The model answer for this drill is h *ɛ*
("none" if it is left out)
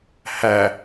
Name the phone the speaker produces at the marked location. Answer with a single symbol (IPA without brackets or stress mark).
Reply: æ